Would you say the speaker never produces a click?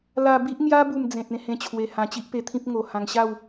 yes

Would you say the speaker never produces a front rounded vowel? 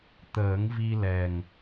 yes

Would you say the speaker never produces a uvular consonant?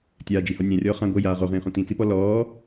no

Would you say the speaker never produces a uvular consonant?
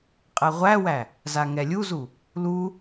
no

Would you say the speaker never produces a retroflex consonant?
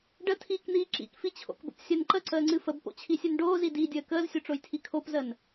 no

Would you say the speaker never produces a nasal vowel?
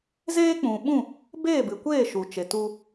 no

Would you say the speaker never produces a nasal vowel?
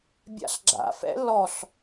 yes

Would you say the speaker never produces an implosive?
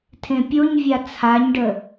yes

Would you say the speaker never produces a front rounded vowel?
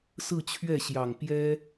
yes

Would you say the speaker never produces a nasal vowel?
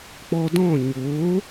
no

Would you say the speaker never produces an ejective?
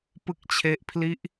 yes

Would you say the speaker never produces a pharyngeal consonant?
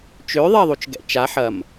no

